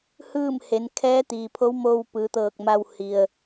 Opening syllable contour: falling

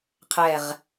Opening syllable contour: falling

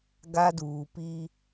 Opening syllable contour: high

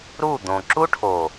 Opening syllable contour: falling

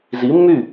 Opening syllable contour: rising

